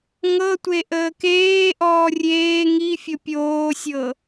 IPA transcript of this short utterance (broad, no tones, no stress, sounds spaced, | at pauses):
ŋ ɤ tʷ e ʔ əː k eː ʔ ɔː rʲ eː ŋ i fʲ ɤ pʲ oː sʲ ɤ